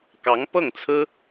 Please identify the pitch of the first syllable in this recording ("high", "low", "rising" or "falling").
rising